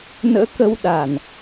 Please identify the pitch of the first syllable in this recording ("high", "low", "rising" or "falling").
rising